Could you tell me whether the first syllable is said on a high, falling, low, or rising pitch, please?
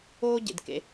high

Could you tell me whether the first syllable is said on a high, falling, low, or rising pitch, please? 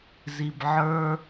low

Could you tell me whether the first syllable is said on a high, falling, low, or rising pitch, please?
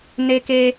high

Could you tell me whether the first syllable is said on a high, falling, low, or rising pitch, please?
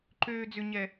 low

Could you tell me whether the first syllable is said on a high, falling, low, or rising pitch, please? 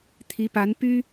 rising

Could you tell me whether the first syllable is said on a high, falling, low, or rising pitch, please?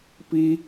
high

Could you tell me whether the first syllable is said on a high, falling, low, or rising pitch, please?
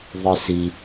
low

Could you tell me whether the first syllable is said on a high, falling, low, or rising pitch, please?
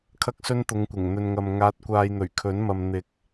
high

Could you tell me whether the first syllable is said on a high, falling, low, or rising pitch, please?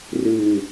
low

